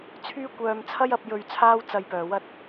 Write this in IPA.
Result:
t͡sʰ yː˥ kʷ œː˧ m t͡sʰ ɐ˥ j ɐ˨˥ p̚ j ɵ˧ ɥ t͡sʰ aː˥ w t͡s ɐ˧ j p œː˨ w ɐ˥ t̚

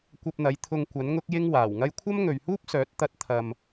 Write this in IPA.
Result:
kʷ ɐ˧ p̚ n̪ ɐ˨˧ j t̪ʰ ʊ˧ ŋ kʷ ɐ˨˥ n ŋ ʊ˥ k̚ j ɪ˥ ŋ w aː˨˩ w ŋ ɐ˥ j kʷʰ ɐ˥ m ŋ ɵ˨ ɥ h uː˥ p̚ s œː˨˥ t̚ t̪ ɐ˥ t̚ t̪ʰ ɐ˧ m

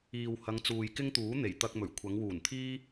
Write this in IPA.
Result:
iː˨ w h ɐ˨˧ ŋ t͡s uː˨ j k ɪ˥ ŋ t̪ uː˨˥ n̪ e˨˩ j t̪ ɐ˧ k̚ m ɵ˨˩ ɥ kʷʰ ɐ˨˧ ŋ w uː˨˩ n t̪ʰ iː˥

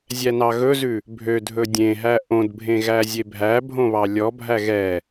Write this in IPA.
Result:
zʲ æ n ɑ ɣ ɵ z ʉ | bʱ ø dʱ ɵ dʲ ẽ ɦ æ ʔ õ d bʱ ẽ ɣ æ zʲ e bʱ æ bʱ õ β ɑ lʲ ɔ bʱ æ ɣ ɛ

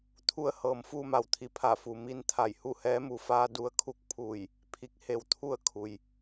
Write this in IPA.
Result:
t̪ʰ u˧ ə̯ h ɤː˩ m f uː˧ m a˩ w t̪ʰ i˩˧ pʰ a˧˩ f u˩ m i˧ n t̪ʰ a˧˩ j h u˥˨ h ɛː˧˥ m u˩ f aː˧ d u˧ ə̯ kʰ u˥˨ k̚ pʰ uː˧˩ j | pʰ i˧ k̚ h e˧ w t̪ʰ u˥˨ ə̯ kʰ u˩ j

